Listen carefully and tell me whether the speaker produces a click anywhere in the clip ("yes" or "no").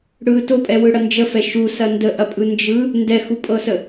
no